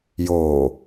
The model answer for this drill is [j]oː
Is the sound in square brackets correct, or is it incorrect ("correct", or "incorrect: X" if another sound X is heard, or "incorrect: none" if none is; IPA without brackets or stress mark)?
correct